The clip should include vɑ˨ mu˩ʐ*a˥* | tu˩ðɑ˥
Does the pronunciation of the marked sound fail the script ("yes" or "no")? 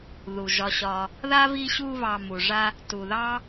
yes